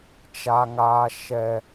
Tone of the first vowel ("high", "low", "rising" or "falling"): high